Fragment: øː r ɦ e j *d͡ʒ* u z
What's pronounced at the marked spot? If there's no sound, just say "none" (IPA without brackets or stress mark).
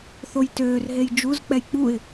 d͡ʒ